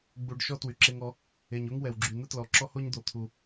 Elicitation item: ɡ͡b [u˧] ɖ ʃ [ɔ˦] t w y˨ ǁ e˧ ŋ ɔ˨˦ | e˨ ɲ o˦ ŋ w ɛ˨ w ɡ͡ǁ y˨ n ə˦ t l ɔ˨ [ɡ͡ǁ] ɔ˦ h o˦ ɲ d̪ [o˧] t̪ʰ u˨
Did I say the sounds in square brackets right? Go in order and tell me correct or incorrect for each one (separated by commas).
correct, correct, incorrect, incorrect